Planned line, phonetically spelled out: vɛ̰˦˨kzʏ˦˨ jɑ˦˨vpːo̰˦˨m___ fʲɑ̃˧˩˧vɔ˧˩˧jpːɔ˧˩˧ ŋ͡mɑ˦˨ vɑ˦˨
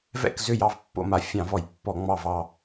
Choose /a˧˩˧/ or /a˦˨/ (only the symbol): a˧˩˧